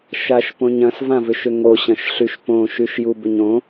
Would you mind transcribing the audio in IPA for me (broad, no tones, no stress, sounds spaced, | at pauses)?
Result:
ʃ a ʃ p õ ɲ ɐ̃ s v ã v ʏ ʃ ʏ ŋ o ɕ ɐ̃ ʃ ɬ y ʃ p õ ʃ y ʃ j u b ʏ ɲ õ